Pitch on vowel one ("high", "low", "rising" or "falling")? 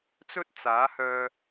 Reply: high